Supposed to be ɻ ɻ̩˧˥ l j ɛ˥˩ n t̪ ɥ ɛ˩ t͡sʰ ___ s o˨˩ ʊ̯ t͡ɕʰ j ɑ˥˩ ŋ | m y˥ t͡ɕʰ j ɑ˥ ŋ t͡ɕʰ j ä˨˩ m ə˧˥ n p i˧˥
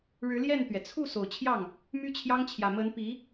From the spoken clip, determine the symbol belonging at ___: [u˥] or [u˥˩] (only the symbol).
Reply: u˥˩